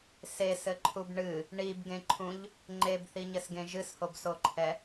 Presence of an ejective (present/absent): absent